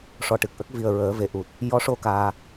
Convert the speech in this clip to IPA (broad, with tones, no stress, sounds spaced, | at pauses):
ʂ ɔ˨˩ ʈ ɨ˨˩ k̚ ʔ ə˦˥ k̚ v i˨˩ ə̯ ɹ əː˨˩˦ v e˨˩ ʔ u˨˩ t̚ | j ɔ˧˥ ʂ o˧ k aː˧